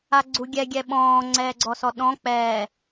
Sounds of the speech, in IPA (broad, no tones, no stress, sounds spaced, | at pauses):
a ɡ͡ǀ u ɡʲ ɛ ɡʲ ɛ ɓ ɔ̃ː ŋ͡ǀ ɛː ɡ͡ǀ ɔ s ɔ ɗ ɔ̃ k͡p ɛː